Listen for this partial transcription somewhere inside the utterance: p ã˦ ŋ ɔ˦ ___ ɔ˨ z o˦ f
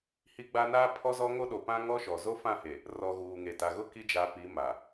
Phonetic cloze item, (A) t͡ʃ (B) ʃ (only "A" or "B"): B